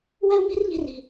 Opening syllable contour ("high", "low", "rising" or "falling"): high